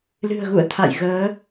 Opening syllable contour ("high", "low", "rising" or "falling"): low